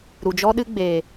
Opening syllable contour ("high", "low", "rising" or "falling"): low